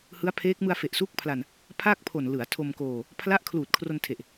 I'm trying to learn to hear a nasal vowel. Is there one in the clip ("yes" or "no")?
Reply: no